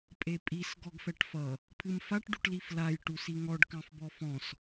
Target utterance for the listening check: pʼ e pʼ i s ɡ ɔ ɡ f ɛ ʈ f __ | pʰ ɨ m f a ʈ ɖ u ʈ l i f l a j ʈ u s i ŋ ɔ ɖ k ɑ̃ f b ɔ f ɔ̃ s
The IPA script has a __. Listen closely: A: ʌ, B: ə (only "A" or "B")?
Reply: A